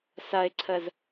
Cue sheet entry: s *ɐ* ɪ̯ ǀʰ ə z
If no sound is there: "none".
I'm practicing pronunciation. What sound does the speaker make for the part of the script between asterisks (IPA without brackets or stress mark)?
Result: ɐ